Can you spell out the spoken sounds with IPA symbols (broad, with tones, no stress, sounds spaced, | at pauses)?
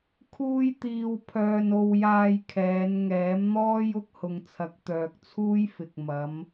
kʰ uː˧ j t̪ iː˧ w pʰ œː˧ n o˧ w j aː˧ j kʰ ɛː˨˧ n ŋ ɛː˨˥ m n̪ ɔː˥ j ʊ˧ k̚ h ʊ˨ ŋ t͡sʰ ɐ˨˥ k̚ t̪ œː˨ k̚ t͡sʰ uː˥ j f ɪ˨ k̚ m ɐ˨˧ m